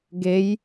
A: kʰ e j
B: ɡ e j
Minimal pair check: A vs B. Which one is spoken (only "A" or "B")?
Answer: B